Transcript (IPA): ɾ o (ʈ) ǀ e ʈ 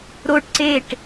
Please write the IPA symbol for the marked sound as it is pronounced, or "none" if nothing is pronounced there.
ʈ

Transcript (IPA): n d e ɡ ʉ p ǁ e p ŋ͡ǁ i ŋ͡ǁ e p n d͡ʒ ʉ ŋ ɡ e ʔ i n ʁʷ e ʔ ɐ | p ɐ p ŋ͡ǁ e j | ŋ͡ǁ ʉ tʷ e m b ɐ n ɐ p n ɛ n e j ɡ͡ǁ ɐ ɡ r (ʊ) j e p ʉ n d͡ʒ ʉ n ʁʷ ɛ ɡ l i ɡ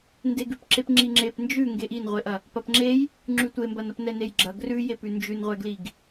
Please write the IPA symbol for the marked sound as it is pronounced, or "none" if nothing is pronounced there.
ʉ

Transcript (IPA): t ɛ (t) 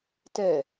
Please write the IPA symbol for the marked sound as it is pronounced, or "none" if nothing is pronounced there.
none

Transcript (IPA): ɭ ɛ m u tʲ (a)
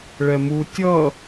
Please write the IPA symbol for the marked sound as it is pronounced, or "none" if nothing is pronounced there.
ʌ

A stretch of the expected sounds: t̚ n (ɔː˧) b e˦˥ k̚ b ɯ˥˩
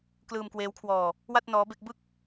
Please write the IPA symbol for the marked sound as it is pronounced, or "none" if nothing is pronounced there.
ɔː˦˥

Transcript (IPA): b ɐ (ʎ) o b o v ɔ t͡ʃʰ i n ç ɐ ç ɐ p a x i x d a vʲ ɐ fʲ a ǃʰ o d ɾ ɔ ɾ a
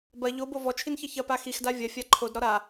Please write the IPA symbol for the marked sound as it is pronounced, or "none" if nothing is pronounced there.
ʎ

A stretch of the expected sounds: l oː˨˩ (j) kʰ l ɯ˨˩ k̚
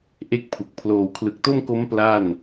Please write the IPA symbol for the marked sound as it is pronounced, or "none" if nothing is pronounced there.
w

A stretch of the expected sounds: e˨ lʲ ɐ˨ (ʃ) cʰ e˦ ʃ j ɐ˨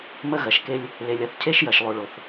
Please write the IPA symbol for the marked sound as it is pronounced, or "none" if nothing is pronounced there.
θ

